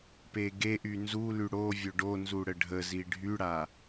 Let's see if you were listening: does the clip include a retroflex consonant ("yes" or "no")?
yes